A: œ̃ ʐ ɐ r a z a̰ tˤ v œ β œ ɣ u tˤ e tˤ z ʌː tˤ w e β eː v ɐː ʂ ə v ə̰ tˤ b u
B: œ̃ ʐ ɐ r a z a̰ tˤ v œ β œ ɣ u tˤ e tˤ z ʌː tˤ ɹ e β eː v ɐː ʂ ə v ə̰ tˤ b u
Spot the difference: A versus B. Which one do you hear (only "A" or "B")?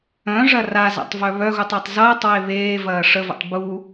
A